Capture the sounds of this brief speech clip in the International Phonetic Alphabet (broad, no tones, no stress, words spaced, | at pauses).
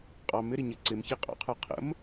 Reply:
qʼɑmɪɾi ɲə ǀɪmçi qʼɑ̰qʰə˞ qʰə̰m